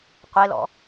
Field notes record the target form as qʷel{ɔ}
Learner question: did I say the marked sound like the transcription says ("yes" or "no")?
no